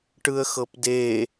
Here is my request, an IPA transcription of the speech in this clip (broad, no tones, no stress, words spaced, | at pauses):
ʈɯə̯xɤpde